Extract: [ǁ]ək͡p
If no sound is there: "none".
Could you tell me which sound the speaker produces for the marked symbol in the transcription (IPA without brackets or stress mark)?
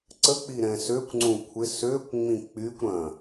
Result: ǀ